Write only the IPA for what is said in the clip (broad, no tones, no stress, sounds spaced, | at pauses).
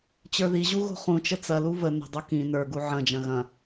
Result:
t͡ɕ ə˞ ð i ʑ u ɣ o̤ χ ũ t͡ʃ ə t͡s ɐ l u v ə n ə̤ dˤ o k ĩ n ə˞ ɡ u ʕ ɐ̃ d͡ʒ ɐ̃ ɣ ɐ̃